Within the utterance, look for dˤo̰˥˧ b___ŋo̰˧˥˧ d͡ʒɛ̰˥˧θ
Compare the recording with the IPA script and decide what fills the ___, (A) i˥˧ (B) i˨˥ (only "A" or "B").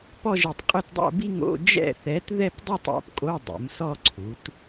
A